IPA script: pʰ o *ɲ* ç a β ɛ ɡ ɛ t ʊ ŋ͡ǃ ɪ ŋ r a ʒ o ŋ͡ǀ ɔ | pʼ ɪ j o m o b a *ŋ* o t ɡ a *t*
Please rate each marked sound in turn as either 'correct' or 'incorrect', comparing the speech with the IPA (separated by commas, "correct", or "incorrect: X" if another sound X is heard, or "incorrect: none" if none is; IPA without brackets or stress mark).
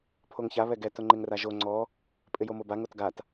incorrect: ŋ, correct, correct